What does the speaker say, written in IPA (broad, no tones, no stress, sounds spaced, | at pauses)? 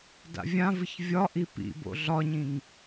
d a̰ vʲ ã v ɨ ç vʲ ɒ ʔ i p ḭ b o̰ ɮ ɒ ɲ ĩ ŋ